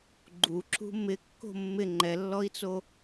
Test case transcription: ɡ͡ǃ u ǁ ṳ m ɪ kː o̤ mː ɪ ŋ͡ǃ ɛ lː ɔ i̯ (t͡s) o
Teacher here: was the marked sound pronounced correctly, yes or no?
yes